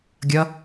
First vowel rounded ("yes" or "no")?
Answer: no